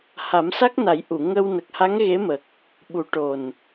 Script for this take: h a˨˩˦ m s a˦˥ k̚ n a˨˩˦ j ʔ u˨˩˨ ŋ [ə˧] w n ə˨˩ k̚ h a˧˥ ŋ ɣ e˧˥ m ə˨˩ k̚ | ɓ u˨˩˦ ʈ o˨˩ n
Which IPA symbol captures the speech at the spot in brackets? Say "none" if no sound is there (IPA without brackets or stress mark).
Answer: ə˧